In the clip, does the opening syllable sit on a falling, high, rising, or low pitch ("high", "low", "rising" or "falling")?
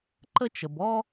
high